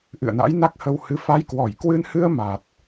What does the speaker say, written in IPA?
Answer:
ʔ ɨ̰˧˨ ə̯ n a̰˧˥ j n a˦˥ k̚ h ə˧ w h ɨ˧ f a˨˦ j k w ɔ˧˩ j k w ɨ˧ n h ɨ˧ ə̯ m a˨˩ t̚

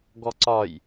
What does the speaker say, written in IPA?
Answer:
ɡ ɔ ǀ ɒ j

